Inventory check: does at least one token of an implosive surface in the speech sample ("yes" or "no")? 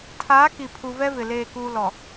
no